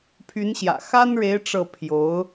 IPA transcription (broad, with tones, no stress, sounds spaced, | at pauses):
pʰ y˧˥ n ɕ j ä̰˨˩ x a˥ n ɻ e˧˥ ɪ̯ ʈ͡ʂ ɤ˥˩ pʰ j o˧˥ ʊ̯